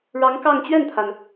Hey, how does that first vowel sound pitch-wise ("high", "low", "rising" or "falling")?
rising